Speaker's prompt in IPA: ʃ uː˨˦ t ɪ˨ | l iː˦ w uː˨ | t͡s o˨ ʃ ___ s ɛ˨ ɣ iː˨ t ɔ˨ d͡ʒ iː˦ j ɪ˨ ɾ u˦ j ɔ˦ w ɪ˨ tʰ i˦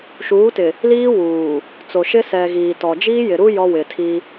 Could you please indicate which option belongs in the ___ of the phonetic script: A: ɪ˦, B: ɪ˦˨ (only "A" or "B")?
A